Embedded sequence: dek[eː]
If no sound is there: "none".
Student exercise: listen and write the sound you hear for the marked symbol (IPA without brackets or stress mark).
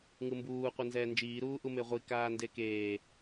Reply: eː